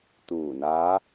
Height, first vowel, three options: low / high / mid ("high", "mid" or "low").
high